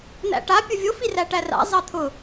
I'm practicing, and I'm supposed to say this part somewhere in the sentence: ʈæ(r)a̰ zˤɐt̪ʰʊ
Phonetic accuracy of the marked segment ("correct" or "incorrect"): correct